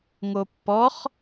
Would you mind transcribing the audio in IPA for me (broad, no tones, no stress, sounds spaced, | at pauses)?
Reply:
ŋ o pː ɔ χ